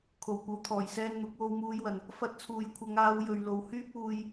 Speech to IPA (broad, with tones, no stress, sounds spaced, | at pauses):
kʰ o˨˩ w kʷ ɐ˨˥ w t̪ʰ ɔː˨˩ j s ɛː˧ n n̪ ʊ˨˥ k̚ w o˧ w m uː˧ j w ɐ˨ n | f ɐ˧ t̚ t͡sʰ uː˨ j kʷʰ ɐ˨˧ ŋ aː˨˧ w j ɵ˨ ɥ l o˨ w h yː˥ p̚ uː˧ j